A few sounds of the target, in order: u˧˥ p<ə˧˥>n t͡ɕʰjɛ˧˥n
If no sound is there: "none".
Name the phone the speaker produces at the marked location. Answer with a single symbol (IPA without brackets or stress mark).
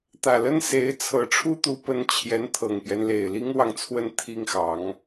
ə˧˥